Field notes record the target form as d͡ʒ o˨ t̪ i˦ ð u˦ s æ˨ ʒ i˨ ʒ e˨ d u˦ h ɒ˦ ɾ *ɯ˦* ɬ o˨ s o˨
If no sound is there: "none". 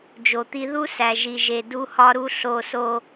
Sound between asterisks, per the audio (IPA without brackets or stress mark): u˦